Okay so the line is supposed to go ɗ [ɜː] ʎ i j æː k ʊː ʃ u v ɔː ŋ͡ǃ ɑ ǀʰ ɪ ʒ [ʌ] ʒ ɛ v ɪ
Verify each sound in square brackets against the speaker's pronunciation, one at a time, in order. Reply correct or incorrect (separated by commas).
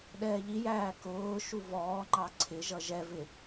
incorrect, correct